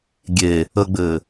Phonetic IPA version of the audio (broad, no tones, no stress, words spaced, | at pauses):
ɡʲe | əɡ͡bɘː